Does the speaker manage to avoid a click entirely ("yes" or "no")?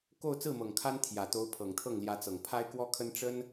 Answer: yes